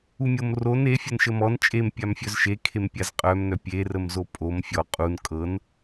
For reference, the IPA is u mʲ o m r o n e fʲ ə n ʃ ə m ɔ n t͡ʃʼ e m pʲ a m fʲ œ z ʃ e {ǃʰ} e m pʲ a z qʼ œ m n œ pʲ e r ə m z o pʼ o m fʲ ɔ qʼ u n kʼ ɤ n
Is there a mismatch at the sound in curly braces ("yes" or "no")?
yes